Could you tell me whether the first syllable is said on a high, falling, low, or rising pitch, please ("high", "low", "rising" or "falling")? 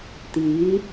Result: rising